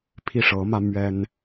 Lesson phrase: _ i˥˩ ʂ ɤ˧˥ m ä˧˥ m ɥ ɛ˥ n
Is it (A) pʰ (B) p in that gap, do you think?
A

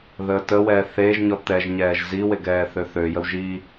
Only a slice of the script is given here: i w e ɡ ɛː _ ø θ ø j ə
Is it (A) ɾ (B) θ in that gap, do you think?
B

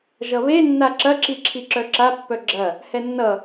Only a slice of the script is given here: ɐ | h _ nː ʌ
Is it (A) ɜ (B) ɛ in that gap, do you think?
B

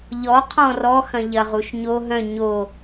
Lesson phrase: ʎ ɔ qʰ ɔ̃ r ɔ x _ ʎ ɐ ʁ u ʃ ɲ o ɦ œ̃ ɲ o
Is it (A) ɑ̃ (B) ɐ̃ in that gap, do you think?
B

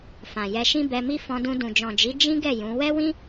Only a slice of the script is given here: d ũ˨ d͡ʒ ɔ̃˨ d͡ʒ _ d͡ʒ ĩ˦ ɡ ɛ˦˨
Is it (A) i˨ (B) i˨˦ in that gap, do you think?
B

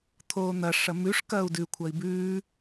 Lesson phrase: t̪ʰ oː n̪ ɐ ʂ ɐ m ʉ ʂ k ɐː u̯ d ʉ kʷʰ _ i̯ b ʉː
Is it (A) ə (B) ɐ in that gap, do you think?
B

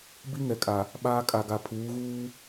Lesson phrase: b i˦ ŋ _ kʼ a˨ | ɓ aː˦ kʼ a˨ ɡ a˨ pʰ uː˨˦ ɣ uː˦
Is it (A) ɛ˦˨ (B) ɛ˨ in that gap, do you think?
B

